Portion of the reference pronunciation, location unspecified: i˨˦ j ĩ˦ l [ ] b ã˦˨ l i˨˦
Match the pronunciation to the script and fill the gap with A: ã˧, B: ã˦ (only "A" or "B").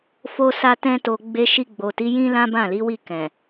B